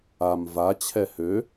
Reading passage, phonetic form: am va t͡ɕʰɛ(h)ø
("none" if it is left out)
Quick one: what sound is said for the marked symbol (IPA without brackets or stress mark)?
h